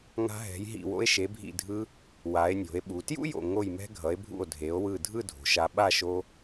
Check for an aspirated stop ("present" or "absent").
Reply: absent